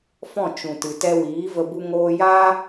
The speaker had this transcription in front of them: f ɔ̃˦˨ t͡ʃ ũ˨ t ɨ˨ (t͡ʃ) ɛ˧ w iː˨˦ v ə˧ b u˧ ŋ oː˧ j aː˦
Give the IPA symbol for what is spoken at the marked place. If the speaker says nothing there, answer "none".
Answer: t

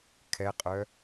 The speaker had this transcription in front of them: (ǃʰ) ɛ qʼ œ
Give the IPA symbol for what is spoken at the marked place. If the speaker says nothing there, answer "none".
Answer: kʰ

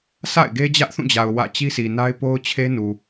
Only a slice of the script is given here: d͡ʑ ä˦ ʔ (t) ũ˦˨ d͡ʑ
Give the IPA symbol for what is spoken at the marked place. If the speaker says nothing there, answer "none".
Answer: θ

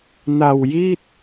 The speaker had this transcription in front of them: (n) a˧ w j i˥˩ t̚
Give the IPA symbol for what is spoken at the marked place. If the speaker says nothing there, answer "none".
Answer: n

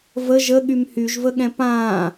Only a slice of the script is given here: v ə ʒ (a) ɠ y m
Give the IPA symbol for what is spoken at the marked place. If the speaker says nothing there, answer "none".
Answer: ə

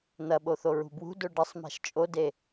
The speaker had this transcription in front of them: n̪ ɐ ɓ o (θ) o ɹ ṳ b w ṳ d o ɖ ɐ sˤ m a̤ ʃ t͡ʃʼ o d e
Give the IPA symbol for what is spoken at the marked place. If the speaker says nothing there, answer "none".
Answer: θ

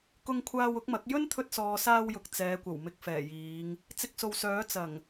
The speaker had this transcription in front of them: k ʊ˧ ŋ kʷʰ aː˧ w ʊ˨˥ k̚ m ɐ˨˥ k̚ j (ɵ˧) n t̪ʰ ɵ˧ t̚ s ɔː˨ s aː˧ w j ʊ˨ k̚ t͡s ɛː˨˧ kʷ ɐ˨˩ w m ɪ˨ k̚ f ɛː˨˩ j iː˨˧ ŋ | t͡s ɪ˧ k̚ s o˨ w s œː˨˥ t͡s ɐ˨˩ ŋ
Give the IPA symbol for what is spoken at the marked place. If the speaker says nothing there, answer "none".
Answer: ɵ˥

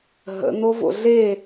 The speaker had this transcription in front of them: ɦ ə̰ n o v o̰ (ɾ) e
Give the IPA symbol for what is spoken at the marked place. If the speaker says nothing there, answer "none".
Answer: ɮ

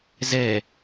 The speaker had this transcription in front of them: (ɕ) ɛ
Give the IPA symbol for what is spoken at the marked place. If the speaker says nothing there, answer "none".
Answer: z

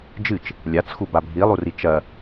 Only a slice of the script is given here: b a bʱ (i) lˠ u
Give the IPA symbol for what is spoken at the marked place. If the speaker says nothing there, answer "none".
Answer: i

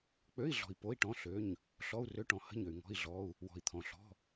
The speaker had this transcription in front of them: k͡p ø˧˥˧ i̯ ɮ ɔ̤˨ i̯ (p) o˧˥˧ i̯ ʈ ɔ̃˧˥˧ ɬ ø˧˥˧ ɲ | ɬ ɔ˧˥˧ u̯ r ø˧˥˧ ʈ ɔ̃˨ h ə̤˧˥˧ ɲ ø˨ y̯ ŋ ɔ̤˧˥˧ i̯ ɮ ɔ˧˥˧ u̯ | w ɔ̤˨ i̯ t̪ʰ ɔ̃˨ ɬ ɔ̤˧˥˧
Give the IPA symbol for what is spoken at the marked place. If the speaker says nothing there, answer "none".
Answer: p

